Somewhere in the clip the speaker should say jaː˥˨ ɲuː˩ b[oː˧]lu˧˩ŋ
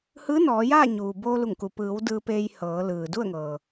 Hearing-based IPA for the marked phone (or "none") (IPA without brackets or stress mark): oː˧